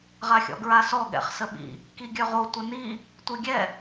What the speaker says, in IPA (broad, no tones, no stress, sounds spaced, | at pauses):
ʁ a xʲ ɔ̰ ɡ ɹ a s ɔ ɠ ɛ̰ χ s ə ɓ ḭ | k i ɡʲ œ ʁ o tʷ ə n i | tʷ e ɡʲ ɛ